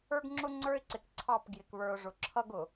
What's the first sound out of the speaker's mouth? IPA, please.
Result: ə˞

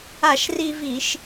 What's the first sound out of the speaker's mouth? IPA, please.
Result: a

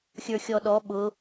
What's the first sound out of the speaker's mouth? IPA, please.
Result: xʲ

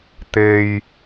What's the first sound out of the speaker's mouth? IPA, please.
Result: t̪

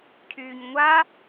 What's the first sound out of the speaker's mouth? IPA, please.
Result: cʰ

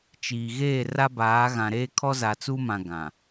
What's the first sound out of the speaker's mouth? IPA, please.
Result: t͡ʃ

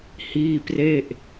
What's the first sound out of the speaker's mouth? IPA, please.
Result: h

